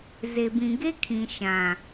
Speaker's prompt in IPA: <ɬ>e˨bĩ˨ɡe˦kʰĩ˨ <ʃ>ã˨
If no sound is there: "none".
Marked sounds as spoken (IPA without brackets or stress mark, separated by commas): z, ʃ